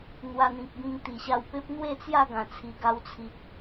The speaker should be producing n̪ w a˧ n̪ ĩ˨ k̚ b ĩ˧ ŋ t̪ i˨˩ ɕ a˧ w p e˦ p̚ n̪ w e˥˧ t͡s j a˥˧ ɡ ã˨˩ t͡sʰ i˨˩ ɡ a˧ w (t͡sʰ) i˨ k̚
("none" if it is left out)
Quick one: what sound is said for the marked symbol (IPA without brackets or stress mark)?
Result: t͡sʰ